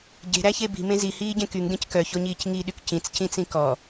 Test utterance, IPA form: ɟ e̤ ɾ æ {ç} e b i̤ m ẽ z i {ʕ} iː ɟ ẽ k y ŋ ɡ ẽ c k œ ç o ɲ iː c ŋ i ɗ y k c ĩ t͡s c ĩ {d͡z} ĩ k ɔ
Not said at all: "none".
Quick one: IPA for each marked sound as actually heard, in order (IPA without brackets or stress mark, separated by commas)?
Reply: ç, h, t͡s